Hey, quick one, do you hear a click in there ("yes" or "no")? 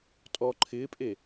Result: yes